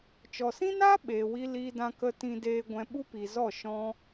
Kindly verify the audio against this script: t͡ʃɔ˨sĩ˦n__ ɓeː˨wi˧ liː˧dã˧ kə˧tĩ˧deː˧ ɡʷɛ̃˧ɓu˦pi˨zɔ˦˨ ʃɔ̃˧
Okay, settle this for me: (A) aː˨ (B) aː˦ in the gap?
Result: B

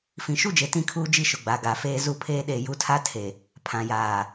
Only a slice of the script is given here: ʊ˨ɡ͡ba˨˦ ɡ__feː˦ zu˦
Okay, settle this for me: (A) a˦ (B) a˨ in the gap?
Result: B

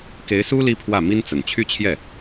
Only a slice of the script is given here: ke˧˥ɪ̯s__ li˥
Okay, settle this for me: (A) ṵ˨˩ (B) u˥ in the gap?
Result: B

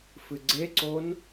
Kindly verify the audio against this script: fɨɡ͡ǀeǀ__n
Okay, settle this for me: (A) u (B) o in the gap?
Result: B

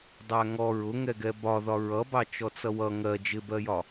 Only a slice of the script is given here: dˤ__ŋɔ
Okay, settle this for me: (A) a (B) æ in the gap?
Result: B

